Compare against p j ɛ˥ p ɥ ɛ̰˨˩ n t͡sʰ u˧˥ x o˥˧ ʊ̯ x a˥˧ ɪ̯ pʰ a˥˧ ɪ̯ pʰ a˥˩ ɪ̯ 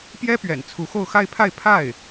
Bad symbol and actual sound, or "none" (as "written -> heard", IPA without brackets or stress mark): none